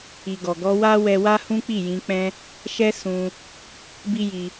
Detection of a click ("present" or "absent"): absent